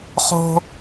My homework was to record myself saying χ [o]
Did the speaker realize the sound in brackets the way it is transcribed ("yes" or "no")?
no